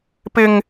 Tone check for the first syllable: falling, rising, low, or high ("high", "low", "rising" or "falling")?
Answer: high